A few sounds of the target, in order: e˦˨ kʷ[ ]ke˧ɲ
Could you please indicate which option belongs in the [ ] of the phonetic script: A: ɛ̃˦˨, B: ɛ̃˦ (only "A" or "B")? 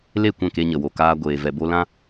A